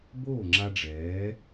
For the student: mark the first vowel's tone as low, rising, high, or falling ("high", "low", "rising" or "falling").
falling